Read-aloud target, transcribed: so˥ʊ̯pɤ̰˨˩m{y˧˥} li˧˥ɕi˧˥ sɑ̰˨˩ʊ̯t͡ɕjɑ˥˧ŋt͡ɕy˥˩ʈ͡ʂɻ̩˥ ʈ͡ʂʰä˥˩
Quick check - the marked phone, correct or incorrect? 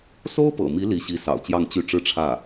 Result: incorrect